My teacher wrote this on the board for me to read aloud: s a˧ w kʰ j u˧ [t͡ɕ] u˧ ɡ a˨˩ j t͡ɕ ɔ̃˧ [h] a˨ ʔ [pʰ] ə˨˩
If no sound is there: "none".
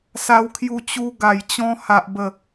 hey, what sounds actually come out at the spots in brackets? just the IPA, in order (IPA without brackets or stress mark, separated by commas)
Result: t͡ɕ, h, b